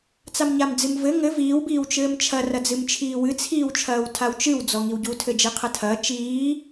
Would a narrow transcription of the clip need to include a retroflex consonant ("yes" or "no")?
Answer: no